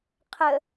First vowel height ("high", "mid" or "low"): mid